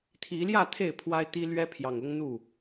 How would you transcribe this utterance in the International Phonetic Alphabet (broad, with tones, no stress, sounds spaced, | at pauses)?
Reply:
t̪ʰ i˨˦ l j ä˥˨ t̪ʰ e˥˨ ɪ̯ pʰ w a˦ ɪ̯ t̪ i˦ l ɥ ɛ˦ pʰ j ɑ˨ ŋ ʊ˦ ŋ n̪ u˥˨